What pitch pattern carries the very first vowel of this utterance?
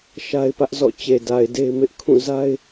high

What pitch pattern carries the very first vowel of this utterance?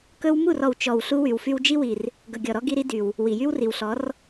high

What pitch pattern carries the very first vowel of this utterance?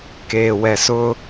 low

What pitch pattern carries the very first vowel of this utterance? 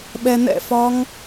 low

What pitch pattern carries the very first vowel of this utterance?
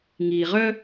low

